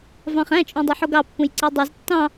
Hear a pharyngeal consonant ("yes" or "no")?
yes